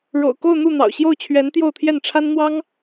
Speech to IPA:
ɻo̰˨˩ʊ̯ko˥˧ʊ̯n̪u˥˩ n̪ɑ̰˨˩ʊ̯ɕjo˥˩ʊ̯t͡ɕʰɥɛ˧˥nt̪jo˥˧ʊ̯ t̪ʰjɛ˥˩nʈ͡ʂʰa˥n n̪wɑ˥ŋ

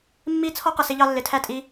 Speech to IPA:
mːi˦ t͡sʰɔ˦qə˨sɪ˧ʎɑ˧ lːɪ˨tʰæ˦˨ tʼi˦

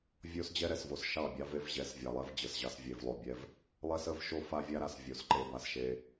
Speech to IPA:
vʲo˦sd͡ʑɛ˦ɾɛ˨svo˨s ʃɑ˦˨bʲɑ˦ve˦v ʑɛ˨svʲɑ˨lˠɛ˦v d͡ʑə˨sʑɑ˦s vʲe˨vlˠo˨bʲɛ˦v | lˠɛ˦sə˦v ʃo˦fa˦vʲa˦ ɾa˨svʲo˨sǃe˨˦ ba˨sʃe˦

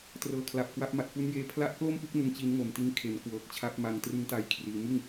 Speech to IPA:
trɤː˨˩kʰla˨˩p̚kwa˦˥p̚ ma˨˩t̚fu˦˥njeː˧ pʰla˦˥ʔklo˥˩mpɯ˥˩k̚ nɯ˦˥ŋt͡ɕi˦˥nŋo˨˩mti˦˥n kʰe˩˦nkwɤː˨˩k̚t͡ɕʰa˦˥p̚ma˧ŋ trɯ˦˥ŋta˧j kʰriː˧ mɯ˥˩ŋ

